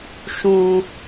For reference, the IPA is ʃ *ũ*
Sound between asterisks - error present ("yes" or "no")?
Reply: no